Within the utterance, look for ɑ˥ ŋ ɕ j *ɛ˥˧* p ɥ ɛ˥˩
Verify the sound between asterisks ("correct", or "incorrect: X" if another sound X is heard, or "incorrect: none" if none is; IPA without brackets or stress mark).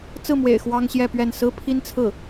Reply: correct